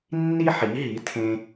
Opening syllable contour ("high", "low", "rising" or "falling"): high